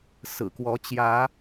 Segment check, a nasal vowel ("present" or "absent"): absent